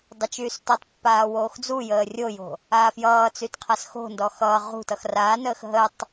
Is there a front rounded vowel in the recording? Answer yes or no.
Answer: yes